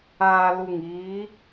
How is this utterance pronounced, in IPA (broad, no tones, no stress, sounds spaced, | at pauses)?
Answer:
aː l u ŋ iː